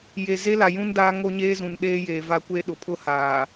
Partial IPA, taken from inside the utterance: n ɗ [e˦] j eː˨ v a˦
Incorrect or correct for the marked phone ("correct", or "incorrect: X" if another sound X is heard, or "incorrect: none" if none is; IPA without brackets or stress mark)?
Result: incorrect: eː˦